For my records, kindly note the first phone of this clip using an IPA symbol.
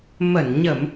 m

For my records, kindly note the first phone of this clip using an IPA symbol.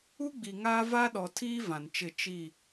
u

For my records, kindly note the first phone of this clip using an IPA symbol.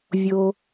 vʲ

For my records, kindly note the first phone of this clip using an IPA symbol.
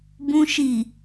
b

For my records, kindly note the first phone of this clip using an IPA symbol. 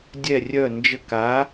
dʲ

